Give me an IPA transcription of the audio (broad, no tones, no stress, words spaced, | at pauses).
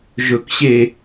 ʒɵkɕe